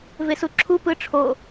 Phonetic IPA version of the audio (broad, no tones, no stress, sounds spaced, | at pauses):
v e s u ǁʰ u p ɯ ʈ͡ʂʰ o